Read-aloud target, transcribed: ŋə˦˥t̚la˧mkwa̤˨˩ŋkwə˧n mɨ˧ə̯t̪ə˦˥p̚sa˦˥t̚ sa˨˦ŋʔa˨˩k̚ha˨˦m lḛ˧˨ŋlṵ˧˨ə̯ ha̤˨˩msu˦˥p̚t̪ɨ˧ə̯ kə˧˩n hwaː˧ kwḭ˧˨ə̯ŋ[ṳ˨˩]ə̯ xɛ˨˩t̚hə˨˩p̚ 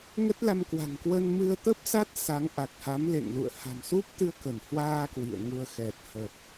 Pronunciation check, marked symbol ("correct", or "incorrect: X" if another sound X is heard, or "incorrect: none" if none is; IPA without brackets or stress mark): incorrect: u˧